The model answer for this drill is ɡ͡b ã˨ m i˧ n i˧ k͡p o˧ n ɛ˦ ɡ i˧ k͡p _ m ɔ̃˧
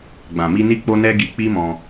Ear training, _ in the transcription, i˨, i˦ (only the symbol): i˦